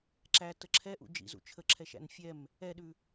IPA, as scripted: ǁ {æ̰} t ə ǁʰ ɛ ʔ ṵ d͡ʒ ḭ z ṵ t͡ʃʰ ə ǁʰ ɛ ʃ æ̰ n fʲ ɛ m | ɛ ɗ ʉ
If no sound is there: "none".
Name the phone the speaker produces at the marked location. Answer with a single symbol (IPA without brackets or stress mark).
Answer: æ